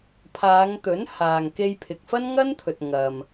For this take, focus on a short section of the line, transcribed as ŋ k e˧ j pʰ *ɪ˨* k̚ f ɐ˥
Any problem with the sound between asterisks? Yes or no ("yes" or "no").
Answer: no